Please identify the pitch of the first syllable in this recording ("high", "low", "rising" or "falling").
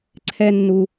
high